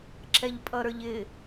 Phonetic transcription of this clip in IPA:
ǁɛʎpʼʌɾə˞ʎɪ

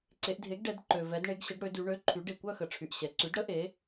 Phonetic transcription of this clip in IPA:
ǀe˩˧ʔdʱe˩˥ɡɖɛ˩˧d ǃø˩vɛ˩˧d ɳe˩˧ɡɕə˩˧ɡ ɽø˩˧dy˩˧ ɳø˩˧˩ǃʰy˩˧ɖe˩ kʷœ˦˨xə˩˧ ʈ͡ʂʰy˩ʔɕɛ˩˧ǀy˩˥dɽə˧˥ ʔe˩˥

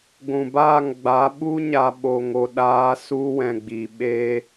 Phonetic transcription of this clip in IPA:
ɡʷũ˨baː˦˨ŋɡ͡ba˨˦ ɓu˦ɲa˨ɓo˨ŋo˨ ɗaː˦ su˧wɛ̃˨ɡ͡bi˨ ɓeː˦

